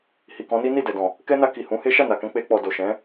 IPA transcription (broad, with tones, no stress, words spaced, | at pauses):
hi˨kɔ̃˨˦ni˦ ni˦˨dɛ˨dɔ̃˨ | kɛ˦na˧ ki˨hũ˨˦he˦ ʃa˦˨na˨kɛ̃˧ k͡pe˧k͡pɔ˨ do˨ʃɛ̃˨˦